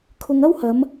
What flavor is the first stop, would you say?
aspirated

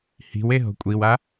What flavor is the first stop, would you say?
ejective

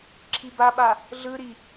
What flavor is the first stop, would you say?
click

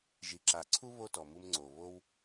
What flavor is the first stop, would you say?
click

